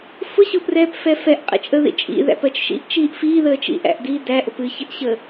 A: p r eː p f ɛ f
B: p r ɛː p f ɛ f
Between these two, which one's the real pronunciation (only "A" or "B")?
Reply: B